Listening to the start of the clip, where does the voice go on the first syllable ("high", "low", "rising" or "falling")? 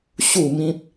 falling